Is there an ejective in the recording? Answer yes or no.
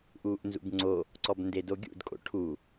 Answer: yes